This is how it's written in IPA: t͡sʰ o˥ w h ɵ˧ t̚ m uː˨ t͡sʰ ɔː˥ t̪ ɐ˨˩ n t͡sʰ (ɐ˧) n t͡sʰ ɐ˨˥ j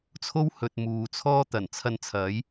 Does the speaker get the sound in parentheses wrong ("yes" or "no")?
no